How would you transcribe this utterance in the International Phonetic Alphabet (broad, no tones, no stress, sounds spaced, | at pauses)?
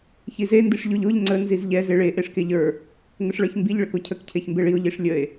ç i z e n d i ʂ ʎ o ʎ o ʎ ŋ͡ǀ ə n z i z ʎ ɛ z e ɭ e ʔ e ʂ k e ʎ ə˞ | ŋ ə ʂ ɭ ə˞ ç m b i ʎ ɭ ə k o cʰ ə k cʰ e ç m b e ɭ i o̯ ʎ i ʂ lʲ ə e̯